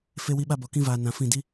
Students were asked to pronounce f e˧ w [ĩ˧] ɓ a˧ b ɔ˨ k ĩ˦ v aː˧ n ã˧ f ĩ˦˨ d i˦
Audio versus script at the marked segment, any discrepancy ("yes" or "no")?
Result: yes